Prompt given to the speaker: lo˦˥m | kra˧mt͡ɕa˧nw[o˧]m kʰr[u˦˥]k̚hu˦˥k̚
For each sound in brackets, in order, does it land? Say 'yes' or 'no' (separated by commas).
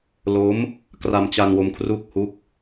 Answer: yes, yes